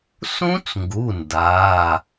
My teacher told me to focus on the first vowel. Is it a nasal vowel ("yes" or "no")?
yes